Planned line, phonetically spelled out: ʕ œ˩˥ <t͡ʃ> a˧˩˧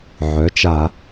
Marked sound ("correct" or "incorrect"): correct